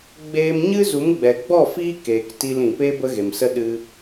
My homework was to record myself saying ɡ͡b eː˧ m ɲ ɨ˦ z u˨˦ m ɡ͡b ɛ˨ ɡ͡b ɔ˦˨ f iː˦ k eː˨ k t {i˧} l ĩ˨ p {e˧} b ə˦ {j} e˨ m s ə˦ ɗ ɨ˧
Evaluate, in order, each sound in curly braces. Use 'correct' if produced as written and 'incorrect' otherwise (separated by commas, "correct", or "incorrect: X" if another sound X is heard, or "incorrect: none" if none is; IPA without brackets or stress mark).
correct, incorrect: e˦, incorrect: ɣ